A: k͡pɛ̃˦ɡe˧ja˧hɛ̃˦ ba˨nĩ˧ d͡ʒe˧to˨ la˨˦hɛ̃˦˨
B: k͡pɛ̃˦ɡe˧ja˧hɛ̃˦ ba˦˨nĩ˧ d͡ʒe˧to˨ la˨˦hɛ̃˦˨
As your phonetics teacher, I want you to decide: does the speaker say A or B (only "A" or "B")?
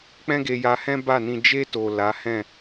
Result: B